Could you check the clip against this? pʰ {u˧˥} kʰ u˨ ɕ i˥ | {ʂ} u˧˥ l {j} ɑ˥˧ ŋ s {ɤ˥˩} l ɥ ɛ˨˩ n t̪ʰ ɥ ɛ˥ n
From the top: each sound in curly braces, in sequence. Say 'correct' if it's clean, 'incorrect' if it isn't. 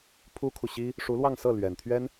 incorrect: u˥, correct, incorrect: w, correct

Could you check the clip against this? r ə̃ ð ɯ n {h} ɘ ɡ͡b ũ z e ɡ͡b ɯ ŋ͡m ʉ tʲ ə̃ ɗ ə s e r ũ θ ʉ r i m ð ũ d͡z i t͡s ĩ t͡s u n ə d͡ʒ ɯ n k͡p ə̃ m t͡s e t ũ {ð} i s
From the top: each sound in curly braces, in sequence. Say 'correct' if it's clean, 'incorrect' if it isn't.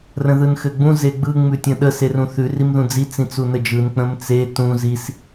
incorrect: x, incorrect: z

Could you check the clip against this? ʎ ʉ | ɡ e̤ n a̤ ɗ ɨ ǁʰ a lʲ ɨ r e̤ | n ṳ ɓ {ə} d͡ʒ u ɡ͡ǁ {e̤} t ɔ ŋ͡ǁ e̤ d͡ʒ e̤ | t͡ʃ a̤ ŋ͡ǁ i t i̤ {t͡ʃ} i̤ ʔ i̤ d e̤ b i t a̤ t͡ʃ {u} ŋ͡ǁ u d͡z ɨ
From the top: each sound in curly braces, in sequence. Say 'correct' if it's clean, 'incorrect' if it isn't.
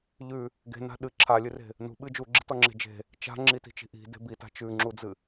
incorrect: ɨ, incorrect: i̤, correct, incorrect: ʉ

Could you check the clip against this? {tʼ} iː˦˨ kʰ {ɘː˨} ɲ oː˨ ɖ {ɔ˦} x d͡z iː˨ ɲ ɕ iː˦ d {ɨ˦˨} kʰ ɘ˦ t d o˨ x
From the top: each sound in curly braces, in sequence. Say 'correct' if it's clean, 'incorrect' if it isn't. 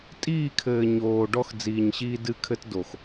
correct, correct, correct, correct

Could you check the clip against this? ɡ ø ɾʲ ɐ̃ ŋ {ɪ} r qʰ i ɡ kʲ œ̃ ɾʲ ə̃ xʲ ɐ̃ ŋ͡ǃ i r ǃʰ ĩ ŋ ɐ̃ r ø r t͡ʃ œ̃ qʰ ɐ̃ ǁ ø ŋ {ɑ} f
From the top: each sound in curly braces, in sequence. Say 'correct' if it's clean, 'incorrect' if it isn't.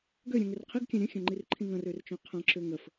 incorrect: ʏ, incorrect: ə

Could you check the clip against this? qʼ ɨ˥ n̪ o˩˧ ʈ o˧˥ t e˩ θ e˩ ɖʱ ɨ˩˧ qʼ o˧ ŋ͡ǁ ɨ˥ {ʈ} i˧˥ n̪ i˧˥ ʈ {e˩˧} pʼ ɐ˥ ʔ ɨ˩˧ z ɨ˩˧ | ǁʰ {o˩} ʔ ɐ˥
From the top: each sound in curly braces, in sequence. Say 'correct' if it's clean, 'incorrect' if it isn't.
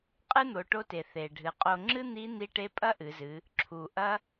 incorrect: n̪, incorrect: e˧˥, incorrect: u˩

